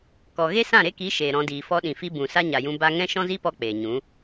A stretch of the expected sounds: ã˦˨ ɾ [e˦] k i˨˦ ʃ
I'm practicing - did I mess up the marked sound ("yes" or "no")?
no